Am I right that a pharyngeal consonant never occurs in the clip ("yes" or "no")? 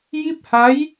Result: yes